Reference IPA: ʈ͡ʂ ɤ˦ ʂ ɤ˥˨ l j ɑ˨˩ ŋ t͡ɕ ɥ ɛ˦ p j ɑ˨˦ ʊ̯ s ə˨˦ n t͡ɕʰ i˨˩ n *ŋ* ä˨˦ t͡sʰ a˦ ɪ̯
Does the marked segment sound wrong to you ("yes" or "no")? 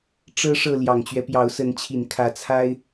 yes